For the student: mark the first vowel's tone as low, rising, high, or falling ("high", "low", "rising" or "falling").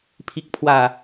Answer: low